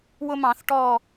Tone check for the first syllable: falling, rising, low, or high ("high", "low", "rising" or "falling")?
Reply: high